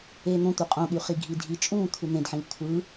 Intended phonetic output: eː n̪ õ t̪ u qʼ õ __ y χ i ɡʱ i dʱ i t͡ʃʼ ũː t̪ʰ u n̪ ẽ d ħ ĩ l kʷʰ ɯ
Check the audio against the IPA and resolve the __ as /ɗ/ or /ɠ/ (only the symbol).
ɠ